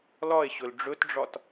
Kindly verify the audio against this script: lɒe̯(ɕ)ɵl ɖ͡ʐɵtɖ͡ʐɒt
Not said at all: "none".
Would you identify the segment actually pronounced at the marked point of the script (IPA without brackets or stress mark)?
ɕ